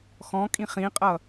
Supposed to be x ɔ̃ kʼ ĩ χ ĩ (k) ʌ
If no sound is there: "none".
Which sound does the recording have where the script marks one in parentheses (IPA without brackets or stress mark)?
qʼ